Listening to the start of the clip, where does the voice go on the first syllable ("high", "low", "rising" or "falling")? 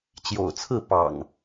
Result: low